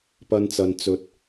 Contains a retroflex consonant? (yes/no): no